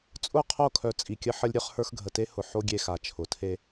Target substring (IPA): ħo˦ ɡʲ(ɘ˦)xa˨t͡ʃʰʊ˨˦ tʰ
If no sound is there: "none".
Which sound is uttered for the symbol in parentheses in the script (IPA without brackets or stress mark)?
e˦